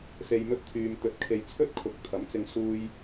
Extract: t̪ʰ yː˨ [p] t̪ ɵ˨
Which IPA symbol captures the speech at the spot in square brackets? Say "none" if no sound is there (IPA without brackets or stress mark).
m